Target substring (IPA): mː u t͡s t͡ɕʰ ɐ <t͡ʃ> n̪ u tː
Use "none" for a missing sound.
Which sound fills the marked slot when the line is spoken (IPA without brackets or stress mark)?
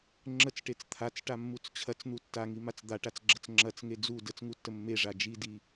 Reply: t͡s